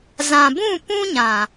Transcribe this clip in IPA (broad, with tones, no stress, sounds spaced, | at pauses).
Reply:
z ã˨ b ũ˦˨ p ũ˦ ɲ ã˨